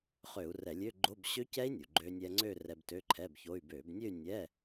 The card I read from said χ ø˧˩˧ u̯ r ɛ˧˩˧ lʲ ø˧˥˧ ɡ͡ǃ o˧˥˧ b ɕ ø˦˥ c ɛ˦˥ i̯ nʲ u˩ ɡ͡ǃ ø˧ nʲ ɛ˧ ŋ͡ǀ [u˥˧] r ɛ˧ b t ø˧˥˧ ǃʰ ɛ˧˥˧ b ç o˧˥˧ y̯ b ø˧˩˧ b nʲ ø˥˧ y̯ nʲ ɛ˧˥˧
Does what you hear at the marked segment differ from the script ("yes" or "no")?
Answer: yes